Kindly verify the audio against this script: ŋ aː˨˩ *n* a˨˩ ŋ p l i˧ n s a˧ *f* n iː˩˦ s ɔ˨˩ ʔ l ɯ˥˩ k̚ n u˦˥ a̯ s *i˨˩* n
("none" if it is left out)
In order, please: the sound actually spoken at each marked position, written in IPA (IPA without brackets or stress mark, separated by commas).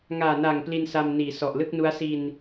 n, m, i˧